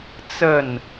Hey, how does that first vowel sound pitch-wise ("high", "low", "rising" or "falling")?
falling